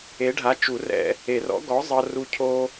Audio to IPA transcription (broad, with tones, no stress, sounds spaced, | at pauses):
e˨˥ ɖʱ a˨˥ t͡ʃ u˨˩˦ r ɛ̰˧ | e˨˩˦ r ɔ̰˨˥ ɡ ɔ˨˥ zˤ ɤ˧ r u˧ cʰ o˧